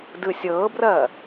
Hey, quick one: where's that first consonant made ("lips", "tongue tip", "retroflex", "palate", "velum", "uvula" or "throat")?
tongue tip